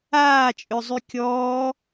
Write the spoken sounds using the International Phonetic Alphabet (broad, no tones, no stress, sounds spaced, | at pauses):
aː t͡ʃʼ ø zˤ y kʲ ɔː